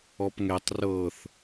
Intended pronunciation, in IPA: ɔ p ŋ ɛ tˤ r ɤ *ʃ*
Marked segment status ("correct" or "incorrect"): incorrect